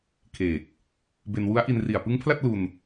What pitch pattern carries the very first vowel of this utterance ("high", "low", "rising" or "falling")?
low